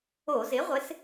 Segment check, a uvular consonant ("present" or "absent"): present